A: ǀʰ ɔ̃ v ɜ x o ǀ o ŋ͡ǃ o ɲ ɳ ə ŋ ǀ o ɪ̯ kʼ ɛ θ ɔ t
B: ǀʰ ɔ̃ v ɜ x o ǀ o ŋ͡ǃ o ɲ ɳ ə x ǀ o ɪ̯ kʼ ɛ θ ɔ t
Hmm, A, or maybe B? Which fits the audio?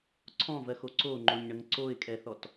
A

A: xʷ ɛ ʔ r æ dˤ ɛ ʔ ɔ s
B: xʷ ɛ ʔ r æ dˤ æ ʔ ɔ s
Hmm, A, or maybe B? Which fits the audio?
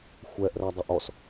A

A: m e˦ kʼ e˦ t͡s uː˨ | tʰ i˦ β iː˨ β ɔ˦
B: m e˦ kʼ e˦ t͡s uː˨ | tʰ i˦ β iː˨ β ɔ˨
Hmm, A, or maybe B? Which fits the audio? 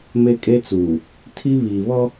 A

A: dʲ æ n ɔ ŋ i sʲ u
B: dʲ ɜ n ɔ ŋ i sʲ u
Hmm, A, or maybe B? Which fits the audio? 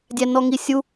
A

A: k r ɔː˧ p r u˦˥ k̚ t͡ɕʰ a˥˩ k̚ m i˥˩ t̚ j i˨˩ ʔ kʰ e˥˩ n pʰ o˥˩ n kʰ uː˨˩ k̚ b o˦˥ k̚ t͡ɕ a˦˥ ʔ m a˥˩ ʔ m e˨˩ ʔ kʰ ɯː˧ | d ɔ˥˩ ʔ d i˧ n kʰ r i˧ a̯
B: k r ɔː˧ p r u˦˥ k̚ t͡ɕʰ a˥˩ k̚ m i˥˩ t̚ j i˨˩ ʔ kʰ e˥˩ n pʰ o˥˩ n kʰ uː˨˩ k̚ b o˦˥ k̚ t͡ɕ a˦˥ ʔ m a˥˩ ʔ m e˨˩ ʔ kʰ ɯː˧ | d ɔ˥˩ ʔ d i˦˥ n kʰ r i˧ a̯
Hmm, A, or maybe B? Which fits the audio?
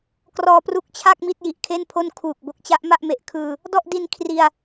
A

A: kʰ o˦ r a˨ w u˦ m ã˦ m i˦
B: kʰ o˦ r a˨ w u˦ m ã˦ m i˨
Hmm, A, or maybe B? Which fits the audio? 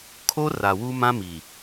B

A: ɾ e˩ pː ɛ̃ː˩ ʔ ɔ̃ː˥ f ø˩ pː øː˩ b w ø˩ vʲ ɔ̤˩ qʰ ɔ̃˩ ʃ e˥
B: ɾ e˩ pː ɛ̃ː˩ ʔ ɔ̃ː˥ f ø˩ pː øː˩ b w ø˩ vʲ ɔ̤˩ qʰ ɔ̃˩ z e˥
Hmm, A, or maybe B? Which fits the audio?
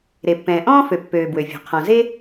B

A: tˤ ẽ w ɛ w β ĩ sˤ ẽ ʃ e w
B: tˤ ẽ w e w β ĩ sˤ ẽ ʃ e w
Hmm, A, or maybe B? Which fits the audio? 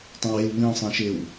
B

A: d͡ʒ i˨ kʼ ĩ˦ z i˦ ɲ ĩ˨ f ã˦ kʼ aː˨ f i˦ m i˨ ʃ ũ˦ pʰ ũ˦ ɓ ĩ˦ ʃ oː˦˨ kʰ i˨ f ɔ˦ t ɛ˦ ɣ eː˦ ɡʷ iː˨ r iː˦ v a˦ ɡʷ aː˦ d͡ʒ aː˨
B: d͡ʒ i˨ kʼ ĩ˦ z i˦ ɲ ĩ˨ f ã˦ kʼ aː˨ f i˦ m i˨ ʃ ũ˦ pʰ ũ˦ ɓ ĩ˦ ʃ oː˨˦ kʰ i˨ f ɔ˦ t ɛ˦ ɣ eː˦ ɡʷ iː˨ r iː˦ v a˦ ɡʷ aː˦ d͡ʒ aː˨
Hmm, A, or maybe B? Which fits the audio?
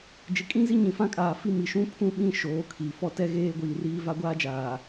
B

